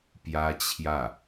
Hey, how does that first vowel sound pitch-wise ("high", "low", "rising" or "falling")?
high